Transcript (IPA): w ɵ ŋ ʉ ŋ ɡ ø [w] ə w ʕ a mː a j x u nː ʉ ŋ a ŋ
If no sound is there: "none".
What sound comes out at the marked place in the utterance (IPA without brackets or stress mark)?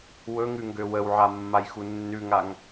w